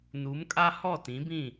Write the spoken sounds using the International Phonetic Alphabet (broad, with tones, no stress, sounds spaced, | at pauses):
n uː˨˦ m kʼ a˦ h ɔ˦˨ t ĩ˨˦ b ĩ˦˨